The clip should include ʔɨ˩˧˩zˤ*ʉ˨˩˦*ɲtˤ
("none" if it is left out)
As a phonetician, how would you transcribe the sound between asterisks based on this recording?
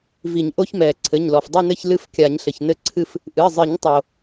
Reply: ɨ˨˩˦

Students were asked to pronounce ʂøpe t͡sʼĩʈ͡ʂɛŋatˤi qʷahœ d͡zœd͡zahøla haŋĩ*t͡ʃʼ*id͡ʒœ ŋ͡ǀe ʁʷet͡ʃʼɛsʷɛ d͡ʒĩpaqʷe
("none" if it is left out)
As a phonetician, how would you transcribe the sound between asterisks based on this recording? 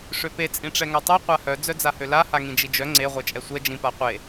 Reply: d͡ʒ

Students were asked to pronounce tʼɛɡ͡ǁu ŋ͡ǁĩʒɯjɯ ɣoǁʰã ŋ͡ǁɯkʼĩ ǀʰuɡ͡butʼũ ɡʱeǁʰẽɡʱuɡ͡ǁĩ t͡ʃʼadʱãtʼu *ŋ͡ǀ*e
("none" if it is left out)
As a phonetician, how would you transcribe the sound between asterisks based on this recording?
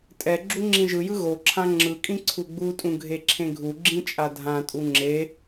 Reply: ŋ͡ǁ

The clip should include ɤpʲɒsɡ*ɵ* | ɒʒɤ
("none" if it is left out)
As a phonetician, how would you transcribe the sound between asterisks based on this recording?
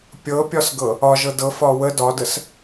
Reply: ɤ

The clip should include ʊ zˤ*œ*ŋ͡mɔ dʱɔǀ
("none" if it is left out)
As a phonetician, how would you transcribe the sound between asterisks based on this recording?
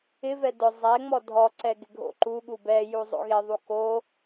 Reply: ɛ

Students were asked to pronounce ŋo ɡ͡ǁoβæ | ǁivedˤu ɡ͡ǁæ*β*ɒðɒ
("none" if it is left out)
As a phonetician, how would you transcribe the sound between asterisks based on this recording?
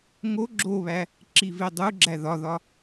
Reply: ð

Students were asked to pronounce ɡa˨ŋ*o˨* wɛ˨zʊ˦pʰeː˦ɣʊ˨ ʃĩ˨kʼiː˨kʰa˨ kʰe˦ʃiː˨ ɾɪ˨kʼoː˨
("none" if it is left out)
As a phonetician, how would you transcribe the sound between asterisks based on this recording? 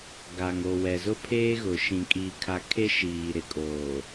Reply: o˨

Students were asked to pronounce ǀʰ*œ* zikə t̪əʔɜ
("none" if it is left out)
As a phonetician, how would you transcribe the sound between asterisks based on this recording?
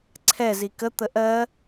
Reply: ɛ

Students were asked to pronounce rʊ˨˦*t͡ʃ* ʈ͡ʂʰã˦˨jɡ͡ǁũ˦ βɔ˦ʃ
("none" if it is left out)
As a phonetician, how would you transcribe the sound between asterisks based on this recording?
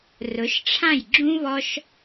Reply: ʃ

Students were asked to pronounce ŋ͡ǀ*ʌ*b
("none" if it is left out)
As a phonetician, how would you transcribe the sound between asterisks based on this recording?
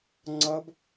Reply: ʌ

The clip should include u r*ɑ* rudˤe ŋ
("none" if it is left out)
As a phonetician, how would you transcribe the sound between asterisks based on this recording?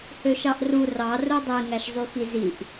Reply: ɑ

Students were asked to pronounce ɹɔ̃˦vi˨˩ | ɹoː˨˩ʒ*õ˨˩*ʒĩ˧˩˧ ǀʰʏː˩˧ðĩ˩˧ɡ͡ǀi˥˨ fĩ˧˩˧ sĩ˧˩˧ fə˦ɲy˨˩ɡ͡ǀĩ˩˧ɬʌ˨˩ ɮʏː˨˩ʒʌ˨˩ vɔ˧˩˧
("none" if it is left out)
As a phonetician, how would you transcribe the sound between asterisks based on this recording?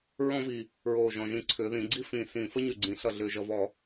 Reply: ɔ̃˨˩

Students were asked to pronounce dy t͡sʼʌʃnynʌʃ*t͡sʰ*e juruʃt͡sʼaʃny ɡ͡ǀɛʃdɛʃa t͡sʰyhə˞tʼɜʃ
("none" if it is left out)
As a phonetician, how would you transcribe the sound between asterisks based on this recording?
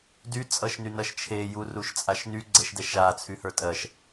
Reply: t͡ʃʰ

